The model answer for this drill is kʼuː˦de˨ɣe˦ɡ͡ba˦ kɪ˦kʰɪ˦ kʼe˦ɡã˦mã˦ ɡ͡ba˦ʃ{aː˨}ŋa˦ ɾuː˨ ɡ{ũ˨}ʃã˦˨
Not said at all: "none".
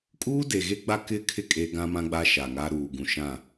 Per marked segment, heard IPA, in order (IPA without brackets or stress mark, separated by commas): a˨, ũ˨